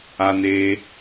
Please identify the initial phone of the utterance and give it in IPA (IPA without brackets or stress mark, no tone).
a